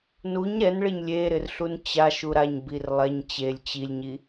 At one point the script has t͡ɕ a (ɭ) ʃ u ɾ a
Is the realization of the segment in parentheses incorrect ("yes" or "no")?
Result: yes